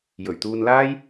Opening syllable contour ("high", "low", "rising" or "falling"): low